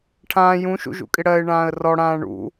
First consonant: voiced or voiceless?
voiceless